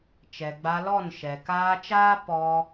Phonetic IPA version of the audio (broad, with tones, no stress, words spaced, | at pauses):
t͡ʃɛ˨ɡ͡ba˧lɔ˦˨n ʃɛ˨ kaː˧t͡ʃaː˦ pɔ˧